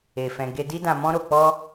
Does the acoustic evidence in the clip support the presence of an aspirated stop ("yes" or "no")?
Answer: no